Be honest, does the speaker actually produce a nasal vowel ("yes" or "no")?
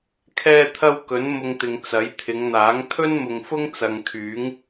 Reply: no